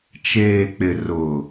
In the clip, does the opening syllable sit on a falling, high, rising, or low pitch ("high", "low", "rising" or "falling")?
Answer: low